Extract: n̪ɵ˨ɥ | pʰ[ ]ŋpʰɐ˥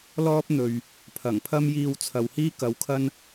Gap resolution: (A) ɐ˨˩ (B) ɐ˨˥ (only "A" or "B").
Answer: A